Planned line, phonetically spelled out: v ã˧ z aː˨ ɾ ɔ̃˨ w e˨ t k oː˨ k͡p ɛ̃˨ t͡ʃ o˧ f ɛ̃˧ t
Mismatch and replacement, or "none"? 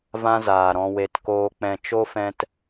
none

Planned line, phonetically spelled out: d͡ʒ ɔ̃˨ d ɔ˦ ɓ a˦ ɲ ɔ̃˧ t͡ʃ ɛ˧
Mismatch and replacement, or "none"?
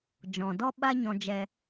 t͡ʃ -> d͡ʒ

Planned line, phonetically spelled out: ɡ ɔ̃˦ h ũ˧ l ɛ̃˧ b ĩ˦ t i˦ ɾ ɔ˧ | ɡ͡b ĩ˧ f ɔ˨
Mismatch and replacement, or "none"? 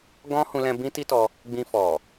ɾ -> t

